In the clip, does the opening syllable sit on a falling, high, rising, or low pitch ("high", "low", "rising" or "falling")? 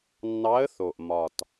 rising